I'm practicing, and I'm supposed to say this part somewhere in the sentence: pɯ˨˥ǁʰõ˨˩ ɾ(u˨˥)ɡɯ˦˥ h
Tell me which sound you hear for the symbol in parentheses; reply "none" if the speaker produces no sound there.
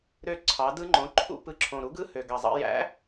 u˨˥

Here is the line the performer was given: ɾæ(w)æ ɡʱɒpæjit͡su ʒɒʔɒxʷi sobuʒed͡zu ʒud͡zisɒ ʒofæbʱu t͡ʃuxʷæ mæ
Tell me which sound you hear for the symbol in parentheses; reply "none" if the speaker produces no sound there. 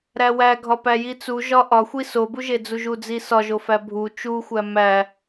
w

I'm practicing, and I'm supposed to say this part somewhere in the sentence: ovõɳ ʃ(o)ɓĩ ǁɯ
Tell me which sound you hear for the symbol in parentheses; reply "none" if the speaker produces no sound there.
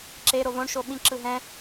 o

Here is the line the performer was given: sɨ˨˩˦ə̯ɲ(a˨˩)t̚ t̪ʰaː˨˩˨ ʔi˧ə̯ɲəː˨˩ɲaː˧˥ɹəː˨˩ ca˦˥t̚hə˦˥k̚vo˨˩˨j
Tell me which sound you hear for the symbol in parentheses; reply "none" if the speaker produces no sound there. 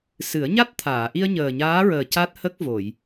a˦˥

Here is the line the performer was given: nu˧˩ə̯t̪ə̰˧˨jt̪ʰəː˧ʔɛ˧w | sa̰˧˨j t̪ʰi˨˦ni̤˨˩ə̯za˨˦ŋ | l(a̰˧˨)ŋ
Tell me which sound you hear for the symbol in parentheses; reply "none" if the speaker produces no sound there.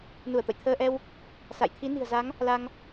a˧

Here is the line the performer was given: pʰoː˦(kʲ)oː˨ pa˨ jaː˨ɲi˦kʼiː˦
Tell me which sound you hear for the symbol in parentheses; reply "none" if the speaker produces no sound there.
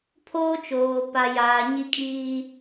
t͡ʃ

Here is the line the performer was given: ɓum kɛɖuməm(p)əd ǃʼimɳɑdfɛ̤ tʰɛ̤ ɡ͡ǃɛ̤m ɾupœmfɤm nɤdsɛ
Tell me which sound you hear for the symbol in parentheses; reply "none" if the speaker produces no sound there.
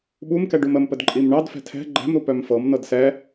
p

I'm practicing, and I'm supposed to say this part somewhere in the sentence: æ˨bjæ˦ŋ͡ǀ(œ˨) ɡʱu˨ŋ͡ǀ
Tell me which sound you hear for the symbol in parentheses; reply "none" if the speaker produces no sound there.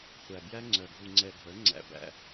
œ˨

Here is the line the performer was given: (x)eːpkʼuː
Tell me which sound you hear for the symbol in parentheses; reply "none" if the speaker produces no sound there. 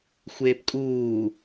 xʷ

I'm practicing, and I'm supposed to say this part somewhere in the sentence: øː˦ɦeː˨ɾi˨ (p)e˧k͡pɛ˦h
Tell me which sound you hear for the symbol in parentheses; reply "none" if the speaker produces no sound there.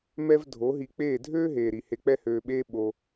h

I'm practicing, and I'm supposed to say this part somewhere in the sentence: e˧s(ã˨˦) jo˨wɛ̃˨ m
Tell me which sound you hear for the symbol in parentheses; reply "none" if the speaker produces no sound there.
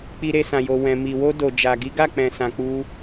ã˨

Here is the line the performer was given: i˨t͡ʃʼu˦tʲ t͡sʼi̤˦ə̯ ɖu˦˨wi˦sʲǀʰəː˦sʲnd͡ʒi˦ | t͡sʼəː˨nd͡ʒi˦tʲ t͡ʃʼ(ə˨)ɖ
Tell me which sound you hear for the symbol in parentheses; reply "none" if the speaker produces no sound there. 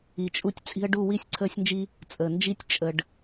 ə˧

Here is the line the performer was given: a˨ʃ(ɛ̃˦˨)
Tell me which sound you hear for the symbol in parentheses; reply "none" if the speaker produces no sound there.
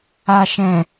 ɛ̃˨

